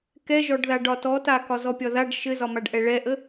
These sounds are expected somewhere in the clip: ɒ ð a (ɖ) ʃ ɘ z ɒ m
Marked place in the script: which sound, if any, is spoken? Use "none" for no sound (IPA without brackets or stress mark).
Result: ɖ